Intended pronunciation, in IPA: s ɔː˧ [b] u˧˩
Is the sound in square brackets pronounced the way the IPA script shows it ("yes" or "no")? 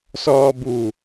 yes